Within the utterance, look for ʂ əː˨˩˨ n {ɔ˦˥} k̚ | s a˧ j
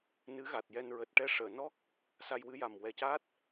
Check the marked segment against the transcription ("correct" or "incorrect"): correct